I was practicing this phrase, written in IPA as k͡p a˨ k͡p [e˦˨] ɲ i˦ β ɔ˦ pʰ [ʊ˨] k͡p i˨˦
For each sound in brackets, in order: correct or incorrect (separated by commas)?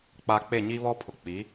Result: correct, correct